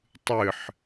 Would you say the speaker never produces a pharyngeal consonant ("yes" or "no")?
no